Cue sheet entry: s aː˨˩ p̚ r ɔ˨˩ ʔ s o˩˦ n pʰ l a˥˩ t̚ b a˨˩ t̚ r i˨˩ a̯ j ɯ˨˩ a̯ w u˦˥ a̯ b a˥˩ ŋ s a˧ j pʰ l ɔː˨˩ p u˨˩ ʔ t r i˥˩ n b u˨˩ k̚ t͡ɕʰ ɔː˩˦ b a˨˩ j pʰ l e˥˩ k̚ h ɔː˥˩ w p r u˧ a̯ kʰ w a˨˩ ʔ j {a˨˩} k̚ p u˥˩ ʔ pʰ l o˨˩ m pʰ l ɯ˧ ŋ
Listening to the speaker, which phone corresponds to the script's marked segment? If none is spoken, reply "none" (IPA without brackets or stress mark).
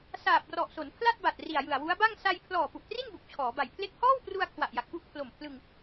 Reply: a˨˩